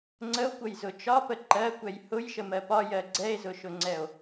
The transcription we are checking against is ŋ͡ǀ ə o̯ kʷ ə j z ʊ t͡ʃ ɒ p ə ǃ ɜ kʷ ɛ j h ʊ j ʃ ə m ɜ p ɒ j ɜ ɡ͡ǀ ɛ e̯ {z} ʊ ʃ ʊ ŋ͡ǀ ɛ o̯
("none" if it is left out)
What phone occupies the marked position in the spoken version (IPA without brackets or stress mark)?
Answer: z